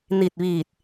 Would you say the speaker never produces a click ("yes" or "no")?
yes